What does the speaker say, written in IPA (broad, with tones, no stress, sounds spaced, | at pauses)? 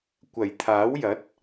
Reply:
kʷ ɐ˨˩ j t̪ʰ aː˨˥ w j ɐ˨˥ t̚